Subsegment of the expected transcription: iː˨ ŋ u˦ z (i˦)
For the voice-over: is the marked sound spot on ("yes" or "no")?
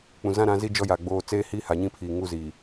no